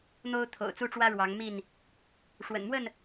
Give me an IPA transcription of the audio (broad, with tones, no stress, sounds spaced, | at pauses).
n̪ o˦ ʊ̯ t̪ʰ o̰˨˩ ʊ̯ t͡s u˦ ʈ͡ʂ w ä˦ ɻ w ɑ˨˦ ŋ m i˥˨ n | ʂ w ə̰˨˩ n m w ə˥˨ n